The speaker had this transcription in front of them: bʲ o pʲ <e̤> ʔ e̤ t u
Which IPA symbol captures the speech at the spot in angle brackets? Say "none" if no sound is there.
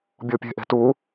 e̤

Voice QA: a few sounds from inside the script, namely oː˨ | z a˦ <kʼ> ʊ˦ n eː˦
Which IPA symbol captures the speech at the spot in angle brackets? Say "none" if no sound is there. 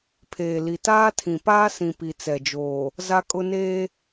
kʼ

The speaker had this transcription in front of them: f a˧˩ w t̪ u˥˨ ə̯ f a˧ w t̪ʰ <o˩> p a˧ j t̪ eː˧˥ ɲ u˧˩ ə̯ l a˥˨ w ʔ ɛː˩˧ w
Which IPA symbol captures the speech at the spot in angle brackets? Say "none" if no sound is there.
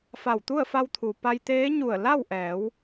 u˩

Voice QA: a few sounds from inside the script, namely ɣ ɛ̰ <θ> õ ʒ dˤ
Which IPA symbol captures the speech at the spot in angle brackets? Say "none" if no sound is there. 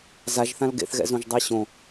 z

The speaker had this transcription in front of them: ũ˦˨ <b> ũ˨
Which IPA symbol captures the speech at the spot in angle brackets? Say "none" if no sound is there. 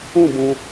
b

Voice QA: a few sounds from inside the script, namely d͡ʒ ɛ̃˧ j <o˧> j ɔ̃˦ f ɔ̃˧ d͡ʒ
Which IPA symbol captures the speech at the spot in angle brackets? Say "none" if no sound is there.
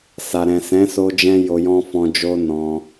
o˧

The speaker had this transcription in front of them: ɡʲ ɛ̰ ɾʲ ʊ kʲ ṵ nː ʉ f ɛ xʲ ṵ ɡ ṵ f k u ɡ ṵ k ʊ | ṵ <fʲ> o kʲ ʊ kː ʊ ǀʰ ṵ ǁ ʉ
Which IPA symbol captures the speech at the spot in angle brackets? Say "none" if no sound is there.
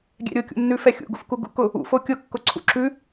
f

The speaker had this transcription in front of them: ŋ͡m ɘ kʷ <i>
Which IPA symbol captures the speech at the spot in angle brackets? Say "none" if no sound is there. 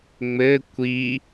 i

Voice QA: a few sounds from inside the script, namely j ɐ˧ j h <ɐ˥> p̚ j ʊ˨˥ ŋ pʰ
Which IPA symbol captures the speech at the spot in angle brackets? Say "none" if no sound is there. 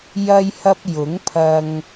ɐ˧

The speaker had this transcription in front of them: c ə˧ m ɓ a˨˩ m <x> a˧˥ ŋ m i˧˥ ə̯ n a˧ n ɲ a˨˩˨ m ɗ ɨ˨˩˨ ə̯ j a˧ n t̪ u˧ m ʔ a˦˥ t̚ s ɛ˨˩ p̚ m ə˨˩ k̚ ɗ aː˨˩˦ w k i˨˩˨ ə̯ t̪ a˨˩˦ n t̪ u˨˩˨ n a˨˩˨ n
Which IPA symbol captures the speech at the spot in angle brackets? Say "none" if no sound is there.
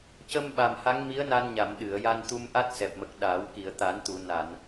h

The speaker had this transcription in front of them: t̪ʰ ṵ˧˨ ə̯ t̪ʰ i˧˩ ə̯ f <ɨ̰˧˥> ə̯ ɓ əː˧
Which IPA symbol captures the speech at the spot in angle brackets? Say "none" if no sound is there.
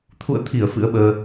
ɨ̰˧˥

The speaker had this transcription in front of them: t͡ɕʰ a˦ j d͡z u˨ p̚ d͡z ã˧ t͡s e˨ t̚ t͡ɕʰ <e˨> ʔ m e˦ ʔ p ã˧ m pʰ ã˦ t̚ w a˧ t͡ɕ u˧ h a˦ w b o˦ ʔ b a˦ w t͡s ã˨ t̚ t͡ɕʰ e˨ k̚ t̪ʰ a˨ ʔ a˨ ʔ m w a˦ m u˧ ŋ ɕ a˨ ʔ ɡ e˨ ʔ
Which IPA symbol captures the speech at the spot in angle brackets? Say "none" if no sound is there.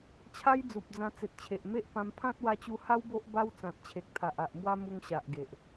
e˨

